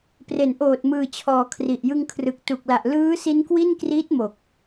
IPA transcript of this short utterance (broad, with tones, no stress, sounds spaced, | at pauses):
p r e˩˦ n ʔ oː˨˩ t̚ m ɯː˨˩ t͡ɕʰ ɔː˩˦ kʰ r i˨˩ ʔ j ɯ˧ ŋ kʰ r ɯ˨˩ k̚ t u˨˩ k̚ l a˨˩ ʔ l ɯː˦˥ s i˦˥ n k w i˥˩ n k r iː˦˥ t̚ m o˨˩ k̚